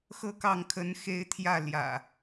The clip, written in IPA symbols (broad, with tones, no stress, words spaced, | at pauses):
xɤ˦kɑ˥˨ŋ kʰə˨˦n xe˦ɪ̯t̪ʰjä˥˨ ljä̰˨˩